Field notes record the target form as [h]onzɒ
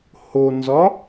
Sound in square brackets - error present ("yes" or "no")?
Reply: no